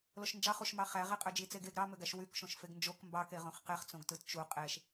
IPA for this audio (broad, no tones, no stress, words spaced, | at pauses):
loʃnd͡ʒɑχuʃmɑ χæʁe qʼød͡ʒit͡seɡeɡ ɾɑmøɡæʃ wykʃõʃ feɡnd͡ʒok mbɑke ʁõχqeχt͡sõɡtɯt t͡ʃu qʼeʃ